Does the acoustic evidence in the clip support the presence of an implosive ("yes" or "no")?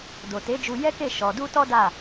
no